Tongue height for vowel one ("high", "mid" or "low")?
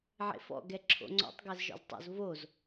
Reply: mid